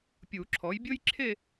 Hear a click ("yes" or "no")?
yes